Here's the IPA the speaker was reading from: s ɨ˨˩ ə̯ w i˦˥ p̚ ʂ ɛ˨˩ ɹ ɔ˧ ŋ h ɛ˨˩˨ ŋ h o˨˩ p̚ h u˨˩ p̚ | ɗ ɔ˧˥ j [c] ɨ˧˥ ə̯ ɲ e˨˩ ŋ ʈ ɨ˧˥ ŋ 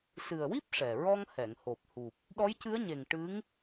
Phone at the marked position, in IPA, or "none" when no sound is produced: c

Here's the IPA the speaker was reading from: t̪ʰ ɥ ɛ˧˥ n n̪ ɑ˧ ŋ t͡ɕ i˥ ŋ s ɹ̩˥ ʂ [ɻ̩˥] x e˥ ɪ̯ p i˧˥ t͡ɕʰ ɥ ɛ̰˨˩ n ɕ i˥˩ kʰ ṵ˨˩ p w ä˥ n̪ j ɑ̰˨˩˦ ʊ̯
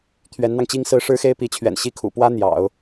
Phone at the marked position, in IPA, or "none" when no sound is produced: ɻ̩˥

